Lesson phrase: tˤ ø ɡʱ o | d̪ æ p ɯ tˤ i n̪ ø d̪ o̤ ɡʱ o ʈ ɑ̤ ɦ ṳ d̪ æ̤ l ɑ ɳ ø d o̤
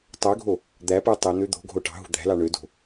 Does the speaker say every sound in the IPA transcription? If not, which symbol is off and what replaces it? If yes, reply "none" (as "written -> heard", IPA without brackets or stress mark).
none